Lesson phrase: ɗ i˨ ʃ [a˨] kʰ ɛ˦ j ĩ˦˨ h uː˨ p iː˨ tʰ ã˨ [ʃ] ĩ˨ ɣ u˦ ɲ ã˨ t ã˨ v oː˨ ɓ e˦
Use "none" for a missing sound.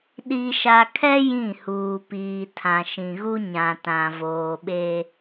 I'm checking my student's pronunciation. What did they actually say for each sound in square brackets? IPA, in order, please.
a˨, ʃ

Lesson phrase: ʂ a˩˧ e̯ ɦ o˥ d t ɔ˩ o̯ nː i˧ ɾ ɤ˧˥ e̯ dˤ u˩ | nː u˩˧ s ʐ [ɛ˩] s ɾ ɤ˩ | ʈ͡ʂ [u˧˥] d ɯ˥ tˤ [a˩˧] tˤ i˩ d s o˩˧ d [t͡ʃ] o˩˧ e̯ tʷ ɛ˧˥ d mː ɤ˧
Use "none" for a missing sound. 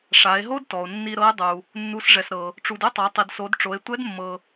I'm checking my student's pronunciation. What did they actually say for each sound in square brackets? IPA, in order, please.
ɛ˩, u˩, a˩˧, ʈ͡ʂ

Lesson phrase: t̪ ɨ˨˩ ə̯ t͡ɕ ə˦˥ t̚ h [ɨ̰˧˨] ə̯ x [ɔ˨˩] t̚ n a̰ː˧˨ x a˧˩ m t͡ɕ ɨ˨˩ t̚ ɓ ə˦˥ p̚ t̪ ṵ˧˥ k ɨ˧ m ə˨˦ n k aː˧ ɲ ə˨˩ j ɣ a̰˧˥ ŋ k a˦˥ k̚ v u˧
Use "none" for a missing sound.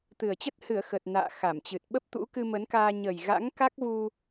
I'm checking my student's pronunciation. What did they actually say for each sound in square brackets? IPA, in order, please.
ɨ˧˩, ə˨˩

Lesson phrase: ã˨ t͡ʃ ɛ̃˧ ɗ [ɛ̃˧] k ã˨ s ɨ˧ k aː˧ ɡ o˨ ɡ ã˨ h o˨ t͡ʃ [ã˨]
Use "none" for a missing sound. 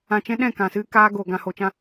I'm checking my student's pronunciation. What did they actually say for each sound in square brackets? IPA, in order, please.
ɛ̃˦˨, ã˧

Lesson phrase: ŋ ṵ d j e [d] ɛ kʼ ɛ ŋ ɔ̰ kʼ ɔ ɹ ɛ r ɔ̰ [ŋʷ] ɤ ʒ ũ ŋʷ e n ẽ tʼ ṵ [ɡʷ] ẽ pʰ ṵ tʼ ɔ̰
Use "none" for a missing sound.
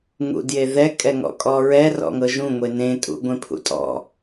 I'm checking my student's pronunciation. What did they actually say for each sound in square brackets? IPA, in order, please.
ð, ŋ, ɡʷ

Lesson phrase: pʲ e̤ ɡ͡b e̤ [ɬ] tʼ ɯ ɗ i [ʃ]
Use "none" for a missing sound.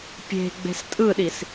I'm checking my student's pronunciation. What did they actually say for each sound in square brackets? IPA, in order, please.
s, s

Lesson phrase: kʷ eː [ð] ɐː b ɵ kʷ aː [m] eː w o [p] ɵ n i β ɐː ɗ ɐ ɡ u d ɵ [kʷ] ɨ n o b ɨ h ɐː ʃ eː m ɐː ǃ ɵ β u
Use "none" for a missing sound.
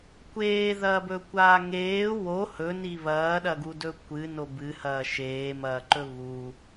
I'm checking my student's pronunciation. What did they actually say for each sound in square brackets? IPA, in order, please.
ð, ŋ, h, kʷ

